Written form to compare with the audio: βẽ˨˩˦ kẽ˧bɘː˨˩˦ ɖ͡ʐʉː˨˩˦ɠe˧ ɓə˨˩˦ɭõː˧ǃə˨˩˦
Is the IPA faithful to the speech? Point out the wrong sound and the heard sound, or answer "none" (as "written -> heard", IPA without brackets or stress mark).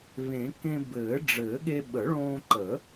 ʉː˨˩˦ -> ɘː˨˩˦